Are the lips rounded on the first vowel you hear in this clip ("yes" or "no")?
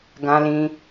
no